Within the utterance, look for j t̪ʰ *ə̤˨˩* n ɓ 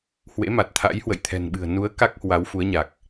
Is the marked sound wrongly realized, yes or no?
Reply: yes